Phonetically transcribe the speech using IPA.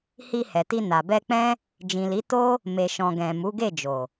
h i˧ h ɛ˨ t i˧ n a˨ b ɛ˧ k͡p ɛ̃˦ | d͡ʒ ĩ˨ l i˨˦ t o˦ | m e˨ ʃ ɔ̃˨ ɡ ɛ̃˨ m u˨˦ ɡ e˦˨ d͡ʒ o˨

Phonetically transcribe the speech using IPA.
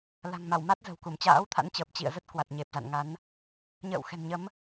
l a̤˨˩ ŋ m a˧˩ w m a˦˥ t̚ z ə̤˨˩ w k u˧˩ m t͡ɕ a̰ː˧˥ w t̪ʰ a̰˧˥ n t͡ɕ əː˨˩ p̚ t͡ɕ ḭ˧˨ ə̯ z ə˦˥ t̚ k w a˨˩ t̚ ɲ e˨˩ p̚ z a̰˧˨ n ŋ a˨˦ n | ɲ ə̰ː˧˨ w x ɛ̤˨˩ n ɲ ə˨˦ m

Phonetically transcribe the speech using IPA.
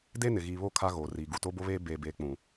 d e˦ n ɪ˨ ɣ iː˨ β o˦˨ kʰ a˦ ɣ oː˨ r iː˨ ɡ u˨ t o˦ b o˦ β eː˦ b eː˦ b eː˦ k͡p ũ˨

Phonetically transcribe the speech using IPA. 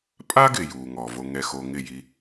pʼ a˦ ɡ ɪ˨ j u˨ ŋ ɔ˨ v o˧ ŋ ɛ˧ x o˧ ŋ ɪ˦˨ j i˧

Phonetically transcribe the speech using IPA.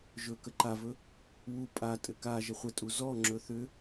ʒ ɵ k ə ǃ a v ɵ | w u pʼ a tʼ ɘ k a ʒ ə χʷ ə tʼ u z ɔ ŋ͡ǁ ɵ θ ʏ

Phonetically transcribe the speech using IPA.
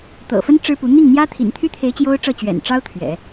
t̪ ɤ̰˨˩ f ə˥ n ʈ͡ʂ ɻ̩˥ p u˧˥ n̪ i˥˩ ŋ n̪ j ä˥ t̪ʰ ḭ˨˩ n t̪ʰ y˥ t̪ʰ e˧˥ ɪ̯ t͡ɕ j o˥ ʊ̯ ʈ͡ʂ ɤ˥˩ t͡ɕ ɥ ɛ̰˨˩ n ʈ͡ʂ ɑ˥ ʊ̯ t̪ʰ ɥ ɛ̰˨˩˦

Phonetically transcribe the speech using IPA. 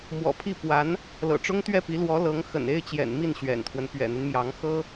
m w ɔ̰˨˩ pʰ i˥˩ p w a˧˥ n | l ɤ̰˨˩ ʈ͡ʂ ʊ˥ ŋ t̪ ɥ ɛ˥˩ p i˧˥ l w ɔ˧˥ l ɤ˧˥ ŋ x ə̰˨˩ n e˥˩ ɪ̯ t͡ɕ j ɛ̰˨˩ n m i˥˩ n ɕ ɥ ɛ̰˨˩ n t̪ʰ w ə˦ n p ɥ ɛ̰˨˩ n̪ y˦ n m j ɑ˧˥ ŋ x ɤ˥

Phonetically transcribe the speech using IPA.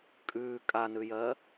kʼ ʉː kʼ a n ʉ j ɜː

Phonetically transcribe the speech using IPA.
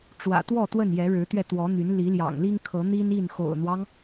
ʈ͡ʂ w ä̰˨˩ t̪ w ɔ˥˨ t̪ w ə˥˨ n j ɛ˨˦ ɻ ɻ̩˨˦ t̪ ɥ ɛ˧ t̪ w ɔ˨˦ n̪ y˨˦ n l i˨˦ l j ɑ̰˨˩ ŋ l i˦ ŋ kʰ ɤ˨˦ n̪ i˦ n i˥˨ n x o̰˨˩ ʊ̯ n̪ w ɑ˦ ŋ

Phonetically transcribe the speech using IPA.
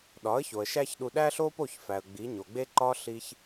ɗ ɒ˩˥ ə̯ ç o˩ ə̯ ʃ æ˥ ç ɗ u˧ ɗ æ˥ ɬ o˥ p o˥˩ ç f æ˩ ə̯ ɡ͡b i˩˥ ɲ o˩ ɡ͡b e˥ ǃ ɒ˥ ɬ i˧ ç

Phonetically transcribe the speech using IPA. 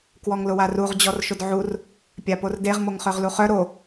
k w ɔ ŋ l ʊ w a r u ʁ d͡ʑ ɔ r ʃ ʊ d ʕ u r | pʲ a p o r d e ʁ m o ŋ χ œ ʁ l u χ œ ɾ o

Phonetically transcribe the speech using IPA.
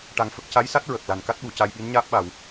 ʈ a˧ ŋ f ə˦˥ k̚ c a˧˥ j s a˦˥ t̚ ɹ ə˨˩ k̚ l a˨˩ n k a˦˥ t̚ ɓ u˨˩˨ c a˧ j ɓ i˧˥ n ɲ aː˦˥ p̚ ɓ a˨˩˨ w

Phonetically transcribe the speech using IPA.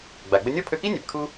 ɡ͡b a˩ ɡ͡b ə˧ nʲ ɔ˥ pʰ ø˧ k i˥ nʲ ɛ˩ p kʰ u˧

